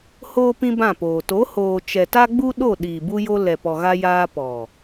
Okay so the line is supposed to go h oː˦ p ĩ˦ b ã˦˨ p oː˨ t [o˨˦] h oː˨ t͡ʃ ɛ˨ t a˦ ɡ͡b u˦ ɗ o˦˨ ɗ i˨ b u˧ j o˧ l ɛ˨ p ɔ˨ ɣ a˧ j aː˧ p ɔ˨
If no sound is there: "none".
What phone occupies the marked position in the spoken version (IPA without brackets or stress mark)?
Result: o˨˦